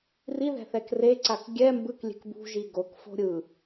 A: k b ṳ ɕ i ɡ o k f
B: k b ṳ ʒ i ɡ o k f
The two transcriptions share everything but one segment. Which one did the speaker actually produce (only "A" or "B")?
B